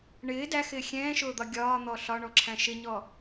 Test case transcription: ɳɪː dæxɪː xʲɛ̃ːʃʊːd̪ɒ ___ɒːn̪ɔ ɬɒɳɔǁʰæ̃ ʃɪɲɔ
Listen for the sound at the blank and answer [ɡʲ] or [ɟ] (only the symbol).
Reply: ɡʲ